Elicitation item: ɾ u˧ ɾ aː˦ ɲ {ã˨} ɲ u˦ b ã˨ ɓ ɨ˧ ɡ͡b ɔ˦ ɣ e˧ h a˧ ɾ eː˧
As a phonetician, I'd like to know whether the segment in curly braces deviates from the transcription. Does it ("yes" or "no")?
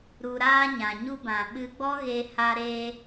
no